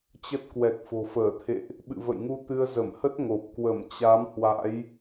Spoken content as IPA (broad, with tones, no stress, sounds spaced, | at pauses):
t͡ɕ ə˦˥ t̚ k w ɛ˨˩ k̚ f o̤˨˩ f əː˧˩ t̪ʰ ḛ˧˨ ʔ | ɓ ɨ̰˧˨ v ə̰˧˨ j ŋ u˧ t̪ ɨ˧ ə̯ z ə˧˩ m h ə˦˥ t̚ ŋ o˨˩ p̚ k w ə˧˩ m t͡ɕ a˨˦ m h w a̰˧˥ j